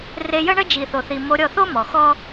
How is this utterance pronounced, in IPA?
r e˧ j ə˦ ɳ ə˦ d͡ʒ i˨ θ o˨ θ i˨ m o˧ ɾʲ ɔ˦˨ θ o˦ m ɔ˨ x ɔ˦

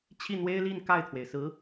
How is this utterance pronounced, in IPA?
t͡ɕʰ i˥˩ n̪ w e˥ ɪ̯ l i˥˧ n k a˥˩ ɪ̯ t̪ʰ w e˩ ɪ̯ s ɹ̩˧˥

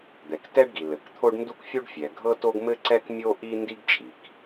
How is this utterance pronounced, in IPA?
d̪ ɛ˩ k t ɛ˥ ɖ ɡ i˩ l ɘ˩ k t̪ʰ o˥ ɖ n d u˥ k fʲ u˥ ɖ fʲ ɛ˩ ɡʱ ɤ˥ t o˥ ɡ m ɘ˥ ǀ ɛ˥ k mʲ o˥ ʔ i˥ n d i˥ ɡ t͡ʃʼ i˩ k

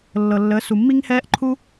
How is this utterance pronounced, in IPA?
lː ɤ˨ lː əː˨˦ s u˨ mː i˦ ŋ h ɛː˦ ʔ ǃʰ u˦

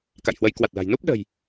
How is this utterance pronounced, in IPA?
k a̰˧˨ j h w ə˨˦ j k w a˨˩ t̚ l a̤˨˩ j n u˦˥ p̚ ɗ ə̤˨˩ j

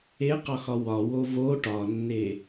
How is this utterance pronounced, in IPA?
e q ɒ x ɒ w ɒ w o v o ʈ ɒ nː e

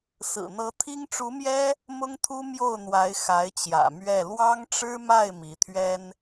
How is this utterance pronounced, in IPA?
s ɹ̩˨˩ n̪ ɤ˧˥ t̪ʰ i˥ ŋ ʈ͡ʂ u˧˥ m j ɛ˥ | m ʊ˥ ŋ t̪ʰ u˥ m j o˥˩ ʊ̯ n̪ w a˧˥ ɪ̯ x a˧˥ ɪ̯ t͡ɕ j ä̰˨˩ m ɥ ɛ˥˩ l w ɑ˥ ŋ ʈ͡ʂ ɻ̩˥ m a˥˩ ɪ̯ m i˧˥ t̪ʰ ɥ ɛ˥ n

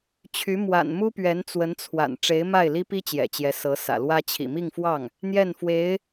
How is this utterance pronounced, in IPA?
t͡ɕʰ y˧˥ m w a̰˨˩ n m u˥ p ɥ ɛ˧˥ n t͡s w ə˧˥ n t͡sʰ w a̰˨˩ n ʈ͡ʂ e˧˥ ɪ̯ m a˥˩ ɪ̯ l i˥ p i˥ t͡ɕ j ɛ̰˨˩ t͡ɕ j ɛ˧˥ s ɤ˧˥ s ä̰˨˩ l w ä˥ t͡ɕʰ ḭ˨˩ m i˥˧ ŋ f w ɑ˥˩ ŋ | n̪ j ɛ˥˩ n f w e˧˥ ɪ̯

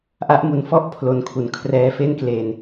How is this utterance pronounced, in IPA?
ʔ a˦˥ ʔ m u˨˩ n f ɔ˥˩ ʔ pʰ l o˩˦ n kʰ u˨˩ n kʰ r ɛː˧ f e˥˩ n k l e˧ n

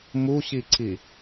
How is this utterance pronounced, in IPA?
m u ɕ i ǀ i

